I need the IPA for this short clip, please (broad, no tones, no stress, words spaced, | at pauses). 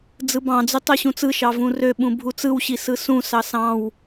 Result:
d͡zɯbɑ̃d͡zy tˤøɕũt͡sɯʃɑ vũrøɓũ bʱut͡sɯwɕi sɯsũsɑ sɑ̃w